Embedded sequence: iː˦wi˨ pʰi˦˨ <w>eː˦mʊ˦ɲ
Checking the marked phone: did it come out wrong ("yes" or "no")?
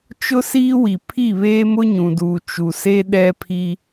yes